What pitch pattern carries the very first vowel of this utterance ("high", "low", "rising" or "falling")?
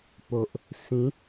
low